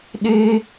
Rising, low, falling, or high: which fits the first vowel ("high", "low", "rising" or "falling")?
high